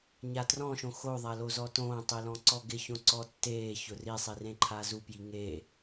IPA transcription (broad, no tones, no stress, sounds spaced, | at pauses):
ɲ a t r ɔ̃ ʃ õ x o ðˤ a l o z ɔ t õː tˤ i l ɔ̃ ǀ ɔ ɡ ɪ ç õ ǀ ɔ tː eː ç ʊ r i sˤ i r ẽ ǃʰ aː z u p j i ŋ e